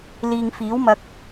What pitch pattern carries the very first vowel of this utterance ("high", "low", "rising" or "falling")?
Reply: low